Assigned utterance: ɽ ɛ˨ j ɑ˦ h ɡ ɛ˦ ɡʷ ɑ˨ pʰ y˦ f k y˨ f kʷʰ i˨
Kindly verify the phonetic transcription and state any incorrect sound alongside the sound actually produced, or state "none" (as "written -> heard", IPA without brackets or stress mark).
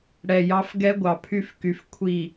h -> f